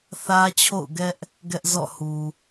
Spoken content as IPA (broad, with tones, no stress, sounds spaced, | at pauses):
θ ä˦ t͡ɕʰ o̰˦˨ ʊ̯ ɡ ɛ˦ ʔ | ɡ ɛ˦ ʔ z ɔ̰˦˨ h u˨